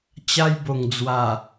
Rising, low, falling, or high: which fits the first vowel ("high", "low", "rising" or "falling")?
high